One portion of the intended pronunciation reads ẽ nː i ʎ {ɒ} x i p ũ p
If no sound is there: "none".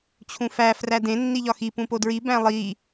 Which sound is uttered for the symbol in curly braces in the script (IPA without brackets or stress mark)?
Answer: ɒ